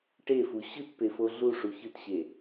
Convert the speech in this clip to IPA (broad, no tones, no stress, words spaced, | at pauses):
ʈefu ɕɯtpefo ɮuʂu çɯtɕe